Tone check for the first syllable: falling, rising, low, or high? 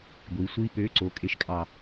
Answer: rising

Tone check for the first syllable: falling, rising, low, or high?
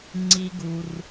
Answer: high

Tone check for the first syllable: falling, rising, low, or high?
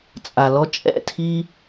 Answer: low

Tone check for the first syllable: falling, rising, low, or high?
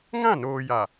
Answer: falling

